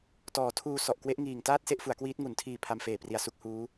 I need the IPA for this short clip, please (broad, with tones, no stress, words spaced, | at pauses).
tɔː˩˦tʰuː˧ sɔ˨˩ʔkwe˦˥ʔŋiː˨˩ŋtaː˥˩t̚ se˥˩ʔfu˩˦a̯kwiː˦˥t̚ ŋu˩˦ntʰiː˨˩ pʰa˧mfeː˨˩pri˨˩a̯ su˦˥k̚huː˦˥